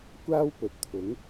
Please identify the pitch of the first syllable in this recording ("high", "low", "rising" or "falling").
high